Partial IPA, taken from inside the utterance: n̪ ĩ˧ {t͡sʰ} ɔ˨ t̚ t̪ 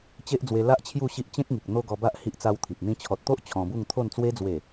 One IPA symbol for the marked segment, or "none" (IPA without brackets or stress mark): t͡ɕʰ